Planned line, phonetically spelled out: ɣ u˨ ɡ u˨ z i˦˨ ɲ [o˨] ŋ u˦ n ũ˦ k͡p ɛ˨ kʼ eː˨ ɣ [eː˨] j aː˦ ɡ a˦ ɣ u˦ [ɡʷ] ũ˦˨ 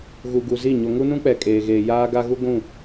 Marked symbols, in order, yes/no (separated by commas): yes, yes, yes